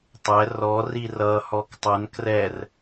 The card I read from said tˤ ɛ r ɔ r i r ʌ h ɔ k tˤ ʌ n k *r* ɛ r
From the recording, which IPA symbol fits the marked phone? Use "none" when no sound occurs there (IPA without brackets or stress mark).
r